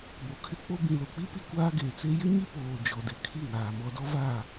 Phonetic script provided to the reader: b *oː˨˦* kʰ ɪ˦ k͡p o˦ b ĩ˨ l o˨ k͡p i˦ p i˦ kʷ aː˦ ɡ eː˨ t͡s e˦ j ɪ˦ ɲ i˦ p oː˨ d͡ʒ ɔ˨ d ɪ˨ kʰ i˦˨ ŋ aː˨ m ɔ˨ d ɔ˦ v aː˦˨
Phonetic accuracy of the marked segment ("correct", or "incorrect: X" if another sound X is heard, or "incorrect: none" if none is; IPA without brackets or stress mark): incorrect: o˨˦